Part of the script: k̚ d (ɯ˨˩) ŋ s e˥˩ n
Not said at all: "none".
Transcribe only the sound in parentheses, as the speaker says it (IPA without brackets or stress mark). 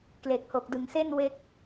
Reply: ɯ˨˩